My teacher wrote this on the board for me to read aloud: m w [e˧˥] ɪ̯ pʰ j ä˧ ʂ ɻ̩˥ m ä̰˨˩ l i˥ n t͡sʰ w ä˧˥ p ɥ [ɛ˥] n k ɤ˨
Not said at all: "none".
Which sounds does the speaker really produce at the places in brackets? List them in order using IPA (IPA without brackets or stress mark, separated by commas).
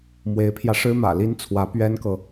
e˧˥, ɛ˥